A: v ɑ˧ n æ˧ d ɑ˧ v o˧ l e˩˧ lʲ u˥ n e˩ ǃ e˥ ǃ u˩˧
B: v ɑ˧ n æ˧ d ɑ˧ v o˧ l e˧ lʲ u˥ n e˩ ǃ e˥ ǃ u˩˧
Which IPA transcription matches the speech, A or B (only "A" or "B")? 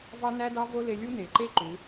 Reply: B